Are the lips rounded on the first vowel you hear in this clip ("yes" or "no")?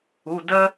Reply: yes